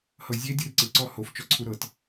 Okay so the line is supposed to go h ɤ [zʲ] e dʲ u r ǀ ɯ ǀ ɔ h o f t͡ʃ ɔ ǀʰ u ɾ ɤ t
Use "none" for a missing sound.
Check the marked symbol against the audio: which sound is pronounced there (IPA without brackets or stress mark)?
zʲ